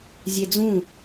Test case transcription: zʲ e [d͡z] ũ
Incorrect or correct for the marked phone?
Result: correct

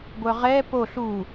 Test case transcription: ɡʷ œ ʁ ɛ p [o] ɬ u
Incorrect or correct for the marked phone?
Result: correct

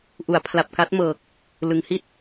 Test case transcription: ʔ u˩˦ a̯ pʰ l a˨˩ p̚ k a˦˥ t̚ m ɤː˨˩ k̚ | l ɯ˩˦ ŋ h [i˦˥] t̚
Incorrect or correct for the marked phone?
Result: correct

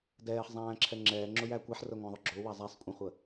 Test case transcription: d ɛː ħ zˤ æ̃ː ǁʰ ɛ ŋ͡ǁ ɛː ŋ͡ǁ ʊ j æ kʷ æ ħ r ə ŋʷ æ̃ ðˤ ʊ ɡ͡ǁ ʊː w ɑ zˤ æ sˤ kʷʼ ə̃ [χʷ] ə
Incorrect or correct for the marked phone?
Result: correct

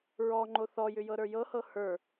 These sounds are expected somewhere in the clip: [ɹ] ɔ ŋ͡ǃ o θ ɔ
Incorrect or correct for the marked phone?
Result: correct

